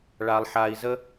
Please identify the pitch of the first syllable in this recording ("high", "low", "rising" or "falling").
low